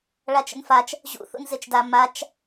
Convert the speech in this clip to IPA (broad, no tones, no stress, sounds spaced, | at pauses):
ɭ a t͡ʃ ə̰ n f a t͡ʃ | ʑ ṵ θ ṵ n z e t͡ʃ d a m a t͡ʃ